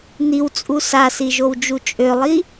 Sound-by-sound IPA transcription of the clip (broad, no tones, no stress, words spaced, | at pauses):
n̪iwt͡sʼu sasiʒowd͡ʒu t͡ʃʼølˠi